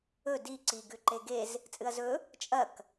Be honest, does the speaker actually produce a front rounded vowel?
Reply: no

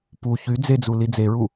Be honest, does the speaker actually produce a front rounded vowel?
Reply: yes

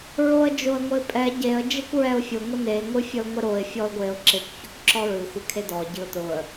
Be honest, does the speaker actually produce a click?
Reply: yes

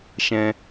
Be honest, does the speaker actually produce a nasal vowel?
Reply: yes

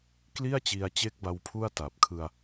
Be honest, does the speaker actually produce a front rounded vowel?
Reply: no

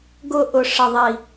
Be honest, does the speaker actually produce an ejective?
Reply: no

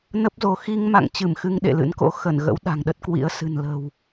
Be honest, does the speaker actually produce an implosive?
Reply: yes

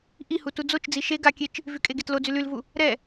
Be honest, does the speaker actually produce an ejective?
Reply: yes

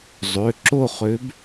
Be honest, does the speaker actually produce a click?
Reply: yes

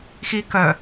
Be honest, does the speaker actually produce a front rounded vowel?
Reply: yes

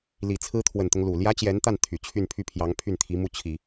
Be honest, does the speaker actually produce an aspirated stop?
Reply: yes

